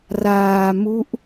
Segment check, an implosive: absent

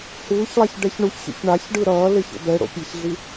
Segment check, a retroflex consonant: present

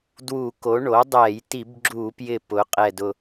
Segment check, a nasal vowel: absent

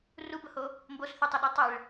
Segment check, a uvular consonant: absent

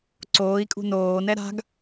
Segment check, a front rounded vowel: absent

